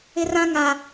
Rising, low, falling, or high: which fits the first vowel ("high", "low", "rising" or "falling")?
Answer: high